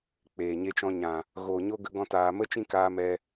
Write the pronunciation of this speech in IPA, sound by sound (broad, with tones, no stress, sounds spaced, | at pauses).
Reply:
k͡p eː˨ ɲ e˧ t͡ʃ ɔ̃˧ ɲ ã˨ | ɣ oː˨ ɲ o˦ ɡ ə˦ ɡ ɔ̃˦ t aː˧ m ə˦ t͡ʃ ĩ˦ k aː˧ m ɛ˧